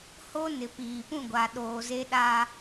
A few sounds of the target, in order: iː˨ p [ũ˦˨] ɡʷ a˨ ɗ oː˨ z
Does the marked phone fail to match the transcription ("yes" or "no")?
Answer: no